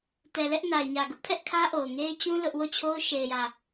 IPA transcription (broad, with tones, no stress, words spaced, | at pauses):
tɛ˨lɛ˦ʔ na˨ɪ̯ ɲä˨ɡʊ˦ʔpʰɛ˦ʔ kʰä˦ʔo˨ʊ̯ŋe˦ɪ̯ t͡ɕũ˦ lʊ˦ʔ wo˦˨t͡ɕʰo˦ʊ̯ ʃe˨ɪ̯jä˨